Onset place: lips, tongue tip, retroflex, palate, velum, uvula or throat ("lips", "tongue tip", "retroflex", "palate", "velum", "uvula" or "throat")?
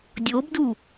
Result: tongue tip